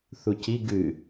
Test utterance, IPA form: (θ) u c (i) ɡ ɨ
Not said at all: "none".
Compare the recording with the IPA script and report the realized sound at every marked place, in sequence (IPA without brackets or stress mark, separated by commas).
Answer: θ, i